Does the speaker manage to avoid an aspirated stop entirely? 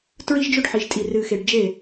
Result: yes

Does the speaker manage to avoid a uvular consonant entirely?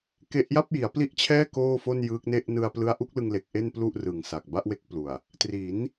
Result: yes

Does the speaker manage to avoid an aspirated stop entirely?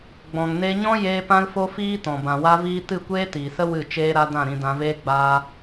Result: yes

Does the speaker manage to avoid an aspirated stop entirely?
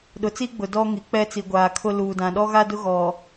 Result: no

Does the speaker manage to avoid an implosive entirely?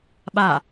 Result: no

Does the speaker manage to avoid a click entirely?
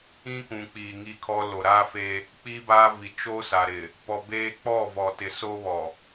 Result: yes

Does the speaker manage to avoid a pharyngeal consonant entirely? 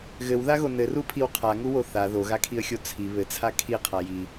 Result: yes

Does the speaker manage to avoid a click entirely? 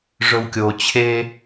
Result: yes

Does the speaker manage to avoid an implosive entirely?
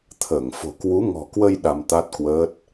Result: no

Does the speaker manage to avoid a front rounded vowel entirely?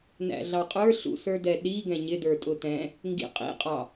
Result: yes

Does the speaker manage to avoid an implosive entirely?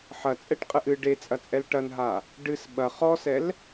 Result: no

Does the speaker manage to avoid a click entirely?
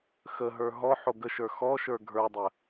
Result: yes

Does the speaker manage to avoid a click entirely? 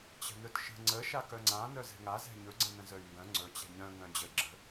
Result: no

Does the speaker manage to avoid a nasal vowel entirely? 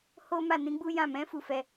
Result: no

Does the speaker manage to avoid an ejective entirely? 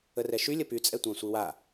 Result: no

